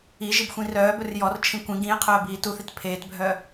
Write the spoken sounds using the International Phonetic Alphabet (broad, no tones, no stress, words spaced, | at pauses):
iʒib xʷĩrœːbɵr jɔrt͡ʃʰĩ kʷĩ ɡĩe̯ qʰœːbiːtuθit pʰeːtbʱœ